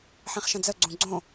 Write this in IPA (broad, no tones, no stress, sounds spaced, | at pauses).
ħ ĩ χ ʃ ə̃ d͡z ə ɡ͡ǀ ũ ɡ͡ǀ õ